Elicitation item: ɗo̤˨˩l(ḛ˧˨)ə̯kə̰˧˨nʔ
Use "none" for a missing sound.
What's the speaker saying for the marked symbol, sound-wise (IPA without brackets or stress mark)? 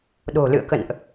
ɨ̰˧˨